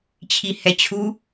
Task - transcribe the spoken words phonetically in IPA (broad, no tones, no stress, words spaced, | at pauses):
t͡ɕʰihɛt͡ɕʰu